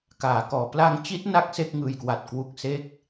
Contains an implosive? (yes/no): no